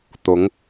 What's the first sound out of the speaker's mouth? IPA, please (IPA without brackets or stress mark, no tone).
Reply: t̪